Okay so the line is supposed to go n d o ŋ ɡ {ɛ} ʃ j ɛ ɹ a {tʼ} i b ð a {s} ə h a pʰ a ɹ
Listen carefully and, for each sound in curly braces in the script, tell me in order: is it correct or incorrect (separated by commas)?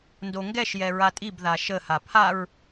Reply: correct, correct, incorrect